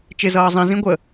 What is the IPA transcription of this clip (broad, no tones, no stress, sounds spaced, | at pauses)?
t͡ʃ ɪ z ʌː zˤ ĩ z ĩ ɡʷ ə